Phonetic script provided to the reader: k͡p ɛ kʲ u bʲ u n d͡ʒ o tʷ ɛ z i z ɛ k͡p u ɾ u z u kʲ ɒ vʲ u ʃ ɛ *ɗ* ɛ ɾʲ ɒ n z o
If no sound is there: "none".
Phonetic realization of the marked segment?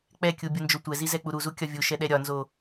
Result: ɗ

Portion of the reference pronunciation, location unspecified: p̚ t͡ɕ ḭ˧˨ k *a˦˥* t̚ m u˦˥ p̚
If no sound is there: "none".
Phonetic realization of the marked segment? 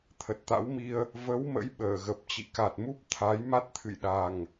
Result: a˨˩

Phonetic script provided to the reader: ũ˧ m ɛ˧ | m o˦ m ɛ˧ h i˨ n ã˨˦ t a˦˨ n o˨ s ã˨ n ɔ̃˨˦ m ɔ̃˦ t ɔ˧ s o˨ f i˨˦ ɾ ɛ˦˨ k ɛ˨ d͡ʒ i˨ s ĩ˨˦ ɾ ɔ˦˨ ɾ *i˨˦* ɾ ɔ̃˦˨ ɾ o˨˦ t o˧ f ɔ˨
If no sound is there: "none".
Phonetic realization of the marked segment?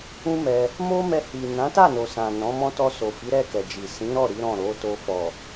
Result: i˨˦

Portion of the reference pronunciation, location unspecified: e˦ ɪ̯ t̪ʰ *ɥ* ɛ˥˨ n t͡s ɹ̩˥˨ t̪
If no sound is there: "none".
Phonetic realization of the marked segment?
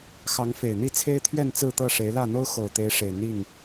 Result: ɥ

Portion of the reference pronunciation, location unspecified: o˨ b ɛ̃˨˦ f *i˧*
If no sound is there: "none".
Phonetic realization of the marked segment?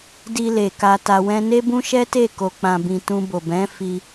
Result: i˧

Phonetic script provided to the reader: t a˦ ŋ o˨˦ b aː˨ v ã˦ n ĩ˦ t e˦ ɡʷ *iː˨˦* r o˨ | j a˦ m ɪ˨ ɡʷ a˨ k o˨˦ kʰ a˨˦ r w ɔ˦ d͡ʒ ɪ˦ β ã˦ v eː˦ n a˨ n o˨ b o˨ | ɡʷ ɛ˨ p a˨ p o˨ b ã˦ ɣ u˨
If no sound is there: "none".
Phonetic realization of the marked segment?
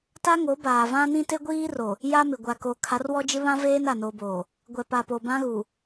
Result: iː˦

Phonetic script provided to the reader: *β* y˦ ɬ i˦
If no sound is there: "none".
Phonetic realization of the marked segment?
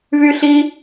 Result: β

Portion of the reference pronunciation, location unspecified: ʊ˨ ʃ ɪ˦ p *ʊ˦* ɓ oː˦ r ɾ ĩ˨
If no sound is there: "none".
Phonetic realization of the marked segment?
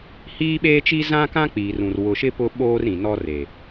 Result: ʊ˦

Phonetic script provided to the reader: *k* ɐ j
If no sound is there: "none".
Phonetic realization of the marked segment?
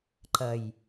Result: ǃ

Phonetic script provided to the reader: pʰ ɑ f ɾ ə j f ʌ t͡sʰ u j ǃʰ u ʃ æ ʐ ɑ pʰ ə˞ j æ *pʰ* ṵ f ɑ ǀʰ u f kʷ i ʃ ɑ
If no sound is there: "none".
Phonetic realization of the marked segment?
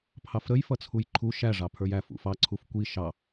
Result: f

